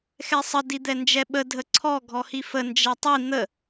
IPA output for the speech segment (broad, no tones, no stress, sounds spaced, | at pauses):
x ɛ sˤ ə d i d̪ ɛ n d͡ʒ ɛ ɓ ə dʱ ə ǀʰ ɔ ɡʱ ɔ h i f ə n d͡ʒ ɛ tˤ i n̪ ə